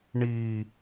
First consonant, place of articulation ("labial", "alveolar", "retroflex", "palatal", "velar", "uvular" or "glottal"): retroflex